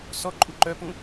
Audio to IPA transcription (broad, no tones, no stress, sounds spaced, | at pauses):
s ɔ ǃʼ u ǃ œ p ũ